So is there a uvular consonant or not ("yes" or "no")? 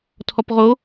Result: yes